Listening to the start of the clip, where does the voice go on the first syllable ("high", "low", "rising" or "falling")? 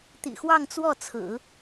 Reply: low